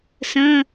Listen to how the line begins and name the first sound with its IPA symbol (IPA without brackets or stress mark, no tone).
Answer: s